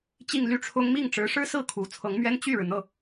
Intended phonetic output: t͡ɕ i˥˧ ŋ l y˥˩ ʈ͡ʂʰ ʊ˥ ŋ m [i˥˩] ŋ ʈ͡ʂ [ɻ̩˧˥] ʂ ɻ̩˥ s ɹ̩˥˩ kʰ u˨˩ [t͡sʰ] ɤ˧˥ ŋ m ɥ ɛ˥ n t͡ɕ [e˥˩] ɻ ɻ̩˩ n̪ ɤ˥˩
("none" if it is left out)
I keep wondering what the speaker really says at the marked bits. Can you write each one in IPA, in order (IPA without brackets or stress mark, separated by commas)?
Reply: i˥˩, ɻ̩˧˥, t͡sʰ, y˥˩